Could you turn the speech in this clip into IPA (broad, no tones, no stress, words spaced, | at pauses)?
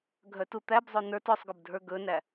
ɡʱœtut̪æbzˤo nə˞t œsˤɡɵbdʱə˞ ɡɵnæ